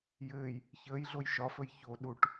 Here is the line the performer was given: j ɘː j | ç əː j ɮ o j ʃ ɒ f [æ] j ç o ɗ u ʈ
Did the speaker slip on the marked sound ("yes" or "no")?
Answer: yes